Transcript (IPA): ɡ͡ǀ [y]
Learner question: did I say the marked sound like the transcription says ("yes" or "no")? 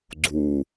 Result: no